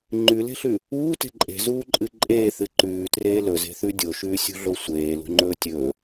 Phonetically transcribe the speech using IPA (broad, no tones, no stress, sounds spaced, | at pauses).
ŋ͡ǃ ʉ l e̤ ɬ ʉ | uː t e̤ ǃʼ e̤ z uː ǃʼ ɨ ǃʼ eː θ ɨ ǃ ʉː t r eː l ɵ z e̤ θ ʉ dʲ o ʃ ʉː sʲ ṳ ɮ o sʷ eː l ṳ ŋ͡ǃ ɵː tʲ ɵː